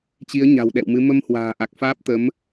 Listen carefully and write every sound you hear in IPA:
t͡ɕ i˨˦ ə̯ ɲ a̤˨˩ w ɗ ɛ̰˧˨ w m ɨ˨˦ m ə˧ m h w a̤ː˨˩ ʔ a˨˩ k̚ f aː˦˥ p̚ t̪ ə˨˦ m

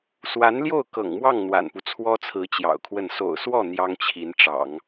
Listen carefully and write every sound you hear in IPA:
s w a˧˥ n l j o˥˩ ʊ̯ k ɤ̰˨˩ ŋ m w ɑ˥˩ ŋ n̪ w a̰˨˩ n p u˦ t͡sʰ w ɔ˥ t͡sʰ ɹ̩˧˥ t͡ɕ j ɑ̰˨˩ ʊ̯ kʰ w ə˥˩ n s o̰˨˩ ʊ̯ s w ɔ˥˩ n̪ j ɑ˥ ŋ t͡ɕʰ i˧˥ n ʈ͡ʂ ɑ̰˨˩˦ ŋ

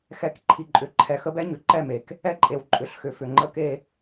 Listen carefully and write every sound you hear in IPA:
x ɛ˨˦ k ǃʰ i˨ ǃʼ ʏ˨ ǃʰ ɛ˨ x ə˦ b ɛ˦ ɲ ʏ˨ ǃ ɛ˦˨ m e˨ k | ɛ˦ ǃʼ e˨ w ǃʼ ʏ˨ ɬ x ʏ˨ f ʏ˨ ŋ͡ǃ ə˦ k e˦

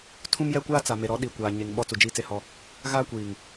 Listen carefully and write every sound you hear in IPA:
tʰ ũ˦ m j ɛ˦ kʷ aː˦ t͡s a˨ m e˨ ɾ ɔ˨˦ ɗ i˨ kʷ aː˨ ɲ e˨ ŋ ɓ ɔ˦ t͡s u˨ d͡ʒ iː˦ t͡s e˦ h ɔ˦ | ɣ aː˦ kʷ iː˨ ŋ

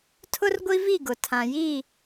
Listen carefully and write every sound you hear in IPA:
tʰ ʊ˦ r ɡʷ i˦ v i˦˨ ɡ ʊ˨ tʰ ã˨ j i˦˨

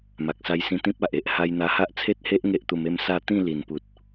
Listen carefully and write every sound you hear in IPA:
m a˨ k̚ s a˧ j s ĩ˧ t̪ ĩ˦ p̚ a˨ ʔ e˦ ʔ h a˧ j n̪ a˧ h a˦ ʔ t͡sʰ e˦ t̚ h e˦ ʔ ŋ e˦ ʔ t̪ u˧ m e˥˧ m s a˥˧ t̪ ĩ˥˧ l i˨˩ n p u˨ t̚

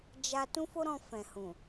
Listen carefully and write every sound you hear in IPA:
d͡ʒ a˧ t ũ˦ f o˦ ɾ ɔ̃˧ f ɛ̃˨ h ũ˨

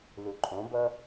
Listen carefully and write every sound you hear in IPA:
l u ǃʼ õ b ʌ

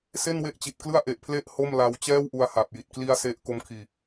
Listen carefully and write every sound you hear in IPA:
s e˥˩ n w e˦˥ ʔ t͡ɕ i˨˩ t̚ k l ɯ˥˩ a̯ ʔ e˨˩ ʔ pʰ l e˥˩ ʔ h o˥˩ m l a˧ w t͡ɕ ɛː˥˩ w ʔ u˧ a̯ h a˨˩ p̚ j i˨˩ t̚ k l i˦˥ a̯ s e˥˩ ʔ k o˦˥ m kʰ iː˧

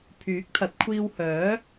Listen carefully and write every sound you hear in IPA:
pʰ yː˨˥ k̚ t̪ʰ ɐ˨˥ t̚ kʷʰ iː˧ w h œː˨˥

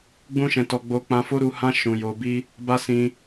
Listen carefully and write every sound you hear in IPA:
ɡ͡b ũ˦ ʃ ɛ̃˧ t ɔ˧ ɡ͡b o˧ k͡p ã˧ f o˦ ɾ u˧ h ã˧ ʃ ũ˨ j o˨ b i˧ | b a˦ s ĩ˧

